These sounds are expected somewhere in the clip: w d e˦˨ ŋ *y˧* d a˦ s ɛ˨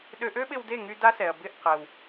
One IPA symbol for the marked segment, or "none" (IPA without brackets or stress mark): y˧